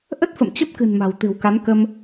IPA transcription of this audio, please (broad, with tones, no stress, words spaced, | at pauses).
ʔə˦˥t̚fə̰˧˨m t͡ɕə˦˥p̚kɨ̤˨˩n ma̤˨˩wt̪ɨ̤˨˩wka˨˦nkə˧m